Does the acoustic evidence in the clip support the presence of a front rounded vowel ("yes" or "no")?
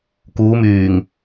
yes